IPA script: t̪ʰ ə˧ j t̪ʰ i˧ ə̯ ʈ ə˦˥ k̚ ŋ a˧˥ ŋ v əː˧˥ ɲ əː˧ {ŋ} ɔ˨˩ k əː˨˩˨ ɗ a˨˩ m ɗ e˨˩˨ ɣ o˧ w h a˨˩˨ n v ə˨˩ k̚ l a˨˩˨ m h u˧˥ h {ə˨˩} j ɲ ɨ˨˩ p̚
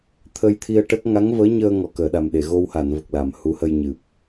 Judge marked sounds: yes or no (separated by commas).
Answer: yes, no